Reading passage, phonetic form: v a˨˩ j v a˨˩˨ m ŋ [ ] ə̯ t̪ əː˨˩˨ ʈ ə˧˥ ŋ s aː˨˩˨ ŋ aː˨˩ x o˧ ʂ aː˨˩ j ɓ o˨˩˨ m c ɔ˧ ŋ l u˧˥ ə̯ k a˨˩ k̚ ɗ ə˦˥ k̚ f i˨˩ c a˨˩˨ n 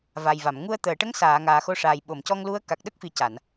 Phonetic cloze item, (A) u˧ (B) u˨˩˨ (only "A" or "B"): A